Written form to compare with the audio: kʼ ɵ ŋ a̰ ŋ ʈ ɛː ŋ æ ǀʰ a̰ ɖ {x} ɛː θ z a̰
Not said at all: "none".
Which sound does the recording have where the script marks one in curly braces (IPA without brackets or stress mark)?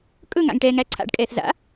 kʼ